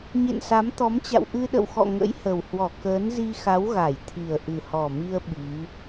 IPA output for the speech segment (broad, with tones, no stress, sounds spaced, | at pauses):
ɲ ḛ˧˨ n s a˨˦ m t̪ ɔ˨˦ m t͡ɕ a̰˧˨ w ʔ ɨ˧ ɗ ə̰˧˨ w x ɔ̰˧˨ ŋ ə̰˧˥ j h ə˨˩ w h w ɔ˧˩ k əː˨˦ n z i˧ x a˨˦ w ɣ a˧˩ j t̪ʰ i˨˩ ə̯ ʔ ɨ˨˩ h ɔ˨˩ m i˧ ə̯ ɓ i˨˦